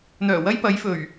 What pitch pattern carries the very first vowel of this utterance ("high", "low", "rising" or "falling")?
low